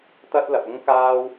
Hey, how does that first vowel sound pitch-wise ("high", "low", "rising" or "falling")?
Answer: high